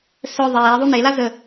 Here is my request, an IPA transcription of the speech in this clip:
sœ ðˤeː ðˤune lazə

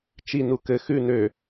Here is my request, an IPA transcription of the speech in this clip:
t͡ʃi nukɘ xʉ nø

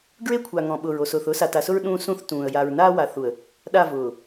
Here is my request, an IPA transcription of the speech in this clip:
ɡɹe˦kʷʰa˨ ŋɔ̃˨ɓʊː˨ɹo˨sʊː˨θ ʊː˦sa˨ta˨sʊ˦ɹ ɗũː˦sũ˦θ tũː˨ə̯ ja˨ɹnaː˦wa˨ θu˨ə̯ | ɗa˦˨ vʊː˨

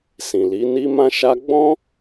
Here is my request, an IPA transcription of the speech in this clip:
sĩ˨li˨˦ni˦ mã˦ʃa˦ ɡ͡bɔ̃˦

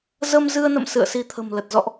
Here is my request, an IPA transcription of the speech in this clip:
zə˧mzɨ˧ə̯nə̰˧˨m sɨ̰˧˨ə̯si˨˦t̪ʰə̤˨˩mlə˨˩t̚ zɔ̰˧˨ʔ

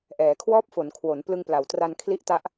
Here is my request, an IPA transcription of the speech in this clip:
ʔɛː˩˦kʰwɔː˥˩p̚fo˩˦n kʰwo˩˦n plɯ˧ŋpla˩˦wtra˧n kʰli˦˥ʔta˦˥ʔ

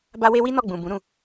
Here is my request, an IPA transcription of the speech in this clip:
ba˦we˦ wi˦ nɔ˦˨ɡ͡bũ˨ bũ˨˦ɾũ˧

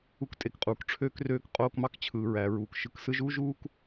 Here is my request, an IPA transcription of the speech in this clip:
u˧ktʼe˨kqʼuː˨kʈ͡ʂʰøː˦k røː˧k qʼoː˧kmɑ˦kt͡ɕʰɯː˨ɹæ˨ ɹuː˨kʃɯ˧k sɯ˧ʒuː˦ʒuː˦k

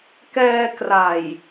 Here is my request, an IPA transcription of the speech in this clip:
kɛː˧kra˨˩j

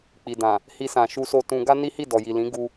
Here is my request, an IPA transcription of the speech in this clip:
k͡pi˨dã˨ | hi˧sã˨ʃu˧so˧ tũ˧ ɡa˦ni˦hi˦˨ dɔ˨ji˨lĩ˨˦ ɡu˧

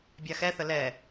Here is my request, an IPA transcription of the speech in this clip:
bʲaxɛθə lɛ

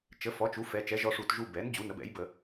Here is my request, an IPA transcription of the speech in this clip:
t͡ʃə˩˥fɔ˩˥t͡ʃu˩˥ fɛ˩˧t͡ʃɛ˩˥ʒɔ˧ʂu˧˩˧t ʒu˧bɛ˩˥n d͡ʑu˩˥nə˩˥bɛ̰˩˥j bə˧˩˧

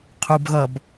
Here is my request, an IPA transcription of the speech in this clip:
qʰubɣʌb

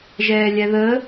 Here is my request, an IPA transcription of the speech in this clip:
ʒɛːlʲɛðə

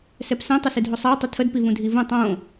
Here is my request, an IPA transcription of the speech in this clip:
sɛpsɛ̃ tˤəsɨdʱosˤæw tˤətʰəd pivũdʱivũ tˤõ

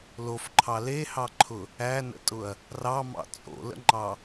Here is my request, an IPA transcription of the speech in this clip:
lofǃʰɑ lehɑǃʰʊ | ænə̰tʼʊɐ̯ | rɑmɑ̰ t͡sʼo̰lə̰ŋ͡ǃɑ

